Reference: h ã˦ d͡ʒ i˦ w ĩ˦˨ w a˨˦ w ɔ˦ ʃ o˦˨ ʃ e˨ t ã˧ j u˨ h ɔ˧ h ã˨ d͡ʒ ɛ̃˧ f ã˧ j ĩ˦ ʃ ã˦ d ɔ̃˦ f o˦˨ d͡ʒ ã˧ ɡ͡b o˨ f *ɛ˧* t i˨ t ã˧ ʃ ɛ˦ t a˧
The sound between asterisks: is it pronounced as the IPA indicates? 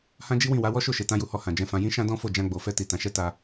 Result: yes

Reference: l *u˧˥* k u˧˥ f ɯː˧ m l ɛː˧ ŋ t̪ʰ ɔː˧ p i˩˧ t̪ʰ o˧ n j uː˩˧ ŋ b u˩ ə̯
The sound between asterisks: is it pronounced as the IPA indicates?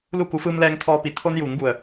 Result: no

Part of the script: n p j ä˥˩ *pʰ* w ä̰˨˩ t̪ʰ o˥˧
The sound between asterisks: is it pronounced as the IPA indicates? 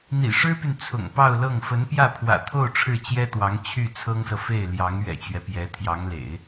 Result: yes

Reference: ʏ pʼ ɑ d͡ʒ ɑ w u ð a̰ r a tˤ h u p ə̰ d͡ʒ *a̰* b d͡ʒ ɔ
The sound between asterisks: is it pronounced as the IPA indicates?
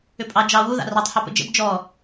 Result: no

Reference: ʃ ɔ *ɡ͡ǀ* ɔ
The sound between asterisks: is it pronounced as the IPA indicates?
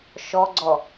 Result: yes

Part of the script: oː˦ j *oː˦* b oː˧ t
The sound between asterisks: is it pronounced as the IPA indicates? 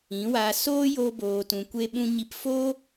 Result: yes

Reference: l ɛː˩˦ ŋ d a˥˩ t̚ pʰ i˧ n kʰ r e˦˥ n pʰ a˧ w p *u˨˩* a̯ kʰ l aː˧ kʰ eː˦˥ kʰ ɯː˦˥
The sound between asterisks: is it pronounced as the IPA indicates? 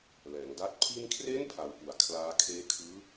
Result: yes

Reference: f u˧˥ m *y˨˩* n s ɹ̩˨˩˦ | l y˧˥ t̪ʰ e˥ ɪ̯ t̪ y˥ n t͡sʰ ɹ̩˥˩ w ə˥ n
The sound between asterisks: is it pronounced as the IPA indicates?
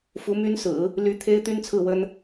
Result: no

